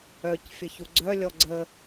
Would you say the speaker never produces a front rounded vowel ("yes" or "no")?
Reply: no